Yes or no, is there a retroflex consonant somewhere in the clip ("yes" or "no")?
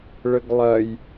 yes